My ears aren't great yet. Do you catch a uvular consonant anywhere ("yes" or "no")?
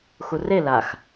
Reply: no